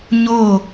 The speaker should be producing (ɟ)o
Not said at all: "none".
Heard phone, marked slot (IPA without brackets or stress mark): ɲ